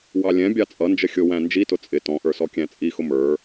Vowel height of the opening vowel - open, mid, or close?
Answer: open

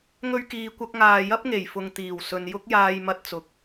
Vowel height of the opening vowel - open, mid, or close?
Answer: mid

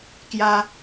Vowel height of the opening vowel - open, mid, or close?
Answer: open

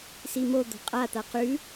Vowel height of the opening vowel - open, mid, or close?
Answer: close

